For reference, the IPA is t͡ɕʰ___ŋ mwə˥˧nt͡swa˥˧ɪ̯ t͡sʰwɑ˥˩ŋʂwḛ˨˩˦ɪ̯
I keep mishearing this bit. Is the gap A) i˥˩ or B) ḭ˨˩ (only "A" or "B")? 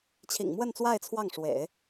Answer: B